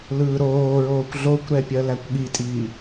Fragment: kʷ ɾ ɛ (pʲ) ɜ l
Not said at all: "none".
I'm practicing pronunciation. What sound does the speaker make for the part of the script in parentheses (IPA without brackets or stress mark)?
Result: pʲ